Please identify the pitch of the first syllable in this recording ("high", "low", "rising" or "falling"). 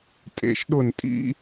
low